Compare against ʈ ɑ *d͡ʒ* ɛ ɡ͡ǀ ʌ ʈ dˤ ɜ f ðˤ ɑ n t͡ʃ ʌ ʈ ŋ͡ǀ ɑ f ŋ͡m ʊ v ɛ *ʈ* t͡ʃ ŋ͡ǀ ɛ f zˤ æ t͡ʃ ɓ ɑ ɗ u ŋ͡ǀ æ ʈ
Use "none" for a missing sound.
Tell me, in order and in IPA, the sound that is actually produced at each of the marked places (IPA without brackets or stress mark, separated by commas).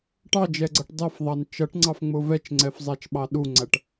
d͡ʒ, none